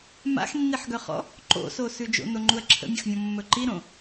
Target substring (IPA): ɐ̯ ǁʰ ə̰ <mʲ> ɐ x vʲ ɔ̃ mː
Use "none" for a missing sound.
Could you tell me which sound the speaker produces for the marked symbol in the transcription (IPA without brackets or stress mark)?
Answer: mʲ